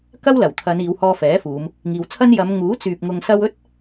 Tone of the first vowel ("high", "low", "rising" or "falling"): high